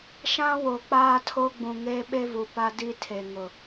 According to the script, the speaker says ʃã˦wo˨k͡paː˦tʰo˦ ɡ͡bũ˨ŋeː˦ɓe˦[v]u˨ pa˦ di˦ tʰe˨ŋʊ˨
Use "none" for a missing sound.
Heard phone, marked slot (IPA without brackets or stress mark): v